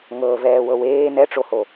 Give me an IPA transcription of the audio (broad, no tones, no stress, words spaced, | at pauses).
ŋɤːvɛːwɤweː nɛʈ͡ʂoho